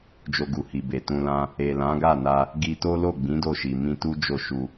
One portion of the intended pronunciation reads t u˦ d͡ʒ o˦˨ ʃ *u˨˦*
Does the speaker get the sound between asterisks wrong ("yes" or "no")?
yes